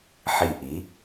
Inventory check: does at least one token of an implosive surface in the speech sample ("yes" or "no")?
no